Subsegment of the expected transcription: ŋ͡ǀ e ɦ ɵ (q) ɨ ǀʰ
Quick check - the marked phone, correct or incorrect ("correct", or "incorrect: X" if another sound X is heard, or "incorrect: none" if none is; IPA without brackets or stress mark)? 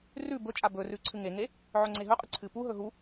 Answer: incorrect: qʼ